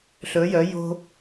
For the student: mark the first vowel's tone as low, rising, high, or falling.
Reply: rising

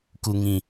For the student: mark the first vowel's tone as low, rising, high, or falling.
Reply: low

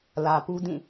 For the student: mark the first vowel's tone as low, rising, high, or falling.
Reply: low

